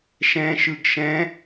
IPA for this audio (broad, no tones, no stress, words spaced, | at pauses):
ʃɛ̃ʃɯɡ ʃɛ̃